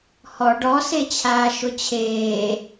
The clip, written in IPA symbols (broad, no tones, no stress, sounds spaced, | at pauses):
h ɔ ɖ ɔ s e t͡ɕʰ aː ʃ ʊ t͡ɕʰ eː